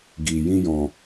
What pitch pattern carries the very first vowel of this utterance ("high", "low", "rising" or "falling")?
low